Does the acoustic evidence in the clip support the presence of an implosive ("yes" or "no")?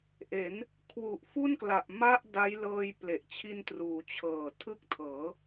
no